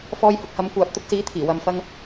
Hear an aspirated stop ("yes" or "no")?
yes